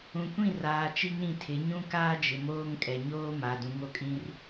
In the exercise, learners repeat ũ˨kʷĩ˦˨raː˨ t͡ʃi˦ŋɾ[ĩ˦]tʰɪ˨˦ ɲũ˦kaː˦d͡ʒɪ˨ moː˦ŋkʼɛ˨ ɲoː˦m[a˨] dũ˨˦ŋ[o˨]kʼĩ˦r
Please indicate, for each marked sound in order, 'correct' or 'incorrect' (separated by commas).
incorrect, correct, correct